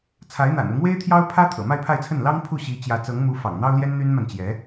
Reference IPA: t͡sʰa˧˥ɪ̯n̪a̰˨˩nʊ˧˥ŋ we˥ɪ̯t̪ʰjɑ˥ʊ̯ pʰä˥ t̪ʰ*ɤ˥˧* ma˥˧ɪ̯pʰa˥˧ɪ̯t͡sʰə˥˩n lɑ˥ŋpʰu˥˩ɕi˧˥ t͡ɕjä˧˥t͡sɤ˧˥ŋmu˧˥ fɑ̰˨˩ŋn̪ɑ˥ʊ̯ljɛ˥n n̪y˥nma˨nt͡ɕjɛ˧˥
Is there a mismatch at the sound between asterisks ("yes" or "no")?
yes